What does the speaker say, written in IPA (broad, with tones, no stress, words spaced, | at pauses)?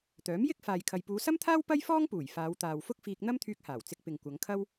t̪œː˨˥mjɪ˥k̚ faː˨jkʰɐ˨j puː˨˧sɐ˥mt̪ʰaː˥w pɐ˥jfɔː˥ŋpuː˨˩j faː˨˧wt̪aː˨w fʊ˥k̚fiː˧k̚ n̪ɐ˥mt̪ʰyː˧k̚haː˨˩w t͡sɪ˧k̚pɪ˨ŋ kʷɐ˨˧ŋkʰɐ˥w